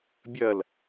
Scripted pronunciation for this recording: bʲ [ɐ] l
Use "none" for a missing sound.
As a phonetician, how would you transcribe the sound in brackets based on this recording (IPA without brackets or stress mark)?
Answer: ɐ